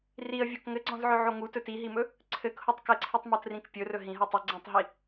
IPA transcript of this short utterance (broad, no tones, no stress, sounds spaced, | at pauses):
r i ə̯ vʲ o k ŋ ɘ ɡ͡ǀ ɔ̃ z ʕ ɵ ʕ o ŋ u t ɵ t i ɦ i m ɵ | ǀʰ ɘ k h o tˤ k ɘ ǀʰ i tˤ m ɤ t r ĩ k pʲ ɵ r ɵ ɦ ĩ ɦ ɤ tˤ ɵ ɡ͡ǀ ĩ tˤ ɦ i